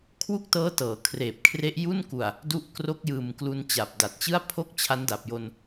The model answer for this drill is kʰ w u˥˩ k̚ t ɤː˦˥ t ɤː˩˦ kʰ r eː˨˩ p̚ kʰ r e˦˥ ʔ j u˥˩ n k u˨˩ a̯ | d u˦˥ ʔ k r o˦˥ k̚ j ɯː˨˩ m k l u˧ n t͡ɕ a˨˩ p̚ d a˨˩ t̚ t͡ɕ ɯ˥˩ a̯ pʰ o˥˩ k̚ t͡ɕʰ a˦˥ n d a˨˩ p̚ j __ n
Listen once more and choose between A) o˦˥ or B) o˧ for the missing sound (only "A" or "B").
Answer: B